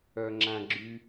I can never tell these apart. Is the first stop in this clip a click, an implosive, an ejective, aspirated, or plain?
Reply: click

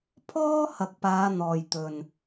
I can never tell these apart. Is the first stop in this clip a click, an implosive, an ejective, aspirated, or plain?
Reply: aspirated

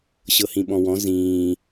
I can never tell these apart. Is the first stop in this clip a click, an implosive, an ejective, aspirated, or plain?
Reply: implosive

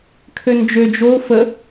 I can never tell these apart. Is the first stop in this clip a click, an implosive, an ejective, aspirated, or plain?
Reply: aspirated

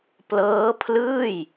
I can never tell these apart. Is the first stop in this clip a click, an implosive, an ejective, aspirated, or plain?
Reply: plain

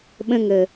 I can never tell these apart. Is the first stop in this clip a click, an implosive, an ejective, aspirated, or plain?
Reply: implosive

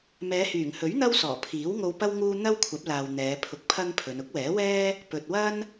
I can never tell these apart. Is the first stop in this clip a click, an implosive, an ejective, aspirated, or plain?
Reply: aspirated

